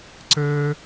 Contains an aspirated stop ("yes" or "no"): no